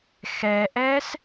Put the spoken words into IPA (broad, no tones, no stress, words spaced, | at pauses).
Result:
xɛʔɛs